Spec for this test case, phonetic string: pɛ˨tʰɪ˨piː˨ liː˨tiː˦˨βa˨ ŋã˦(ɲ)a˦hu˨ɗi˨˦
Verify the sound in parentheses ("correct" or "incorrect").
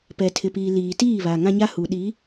correct